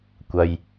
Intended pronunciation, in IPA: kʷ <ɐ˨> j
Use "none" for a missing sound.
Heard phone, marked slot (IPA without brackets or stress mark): ɐ˨